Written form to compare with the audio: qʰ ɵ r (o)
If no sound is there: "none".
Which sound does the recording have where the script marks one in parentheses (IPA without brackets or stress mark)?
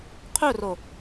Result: o